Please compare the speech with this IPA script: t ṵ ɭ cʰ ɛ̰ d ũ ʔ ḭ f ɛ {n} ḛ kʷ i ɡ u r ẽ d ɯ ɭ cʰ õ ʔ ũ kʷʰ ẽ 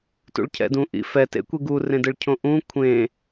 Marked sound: incorrect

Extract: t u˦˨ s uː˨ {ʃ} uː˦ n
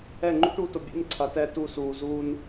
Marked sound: incorrect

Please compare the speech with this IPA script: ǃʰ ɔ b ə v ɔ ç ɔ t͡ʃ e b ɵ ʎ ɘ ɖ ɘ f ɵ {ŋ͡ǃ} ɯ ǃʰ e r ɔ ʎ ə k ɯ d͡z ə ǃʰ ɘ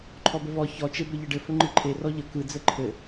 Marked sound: correct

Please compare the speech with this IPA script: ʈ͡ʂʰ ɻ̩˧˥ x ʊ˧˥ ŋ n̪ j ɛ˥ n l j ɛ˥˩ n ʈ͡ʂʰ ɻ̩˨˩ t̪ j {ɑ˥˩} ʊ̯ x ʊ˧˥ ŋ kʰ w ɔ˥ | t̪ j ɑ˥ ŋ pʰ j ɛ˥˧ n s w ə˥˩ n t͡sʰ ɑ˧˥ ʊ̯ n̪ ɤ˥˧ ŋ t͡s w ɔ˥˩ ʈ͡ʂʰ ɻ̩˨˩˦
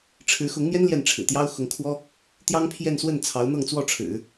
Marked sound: incorrect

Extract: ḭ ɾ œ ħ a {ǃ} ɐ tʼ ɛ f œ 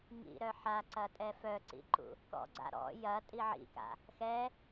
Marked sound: incorrect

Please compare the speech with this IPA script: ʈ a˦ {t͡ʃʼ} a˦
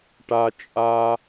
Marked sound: correct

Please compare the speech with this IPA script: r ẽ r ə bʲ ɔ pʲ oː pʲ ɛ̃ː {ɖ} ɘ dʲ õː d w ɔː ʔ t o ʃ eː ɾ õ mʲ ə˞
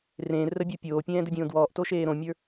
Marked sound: incorrect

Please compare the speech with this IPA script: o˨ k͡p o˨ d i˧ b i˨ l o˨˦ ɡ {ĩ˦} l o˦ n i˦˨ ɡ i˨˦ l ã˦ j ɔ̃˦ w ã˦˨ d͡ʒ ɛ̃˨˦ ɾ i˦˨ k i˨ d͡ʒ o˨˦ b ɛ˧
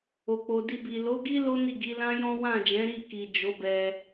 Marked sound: incorrect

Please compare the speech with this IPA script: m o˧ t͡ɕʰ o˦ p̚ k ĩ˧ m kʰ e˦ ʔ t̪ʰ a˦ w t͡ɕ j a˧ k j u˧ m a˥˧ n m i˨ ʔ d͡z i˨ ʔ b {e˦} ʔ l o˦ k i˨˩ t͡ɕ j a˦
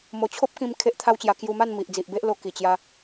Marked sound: correct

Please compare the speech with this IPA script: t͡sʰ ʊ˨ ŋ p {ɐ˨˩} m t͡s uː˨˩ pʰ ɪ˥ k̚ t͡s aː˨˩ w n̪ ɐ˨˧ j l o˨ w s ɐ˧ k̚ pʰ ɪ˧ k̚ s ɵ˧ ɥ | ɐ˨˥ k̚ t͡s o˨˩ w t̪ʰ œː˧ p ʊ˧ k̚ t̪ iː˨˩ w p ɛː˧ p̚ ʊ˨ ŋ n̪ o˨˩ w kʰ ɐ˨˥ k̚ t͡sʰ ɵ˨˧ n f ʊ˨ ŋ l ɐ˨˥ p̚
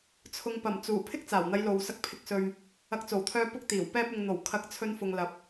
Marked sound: correct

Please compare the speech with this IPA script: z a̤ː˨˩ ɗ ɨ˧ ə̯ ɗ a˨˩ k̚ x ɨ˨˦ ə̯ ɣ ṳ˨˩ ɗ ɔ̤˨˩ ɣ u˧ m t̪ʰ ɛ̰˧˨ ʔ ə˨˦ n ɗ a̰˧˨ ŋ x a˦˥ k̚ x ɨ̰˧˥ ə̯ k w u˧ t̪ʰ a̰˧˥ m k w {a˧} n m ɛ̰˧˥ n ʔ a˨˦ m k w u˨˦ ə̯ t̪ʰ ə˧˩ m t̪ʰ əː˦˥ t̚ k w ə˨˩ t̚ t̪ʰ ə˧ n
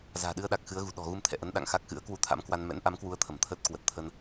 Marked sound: correct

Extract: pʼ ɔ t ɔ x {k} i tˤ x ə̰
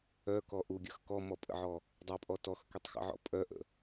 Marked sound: correct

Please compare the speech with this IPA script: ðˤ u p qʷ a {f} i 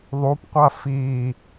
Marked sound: correct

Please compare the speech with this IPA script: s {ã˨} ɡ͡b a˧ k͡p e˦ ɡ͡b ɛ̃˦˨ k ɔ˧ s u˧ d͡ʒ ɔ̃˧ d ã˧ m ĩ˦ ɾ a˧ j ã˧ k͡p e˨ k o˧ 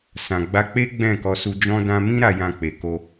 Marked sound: correct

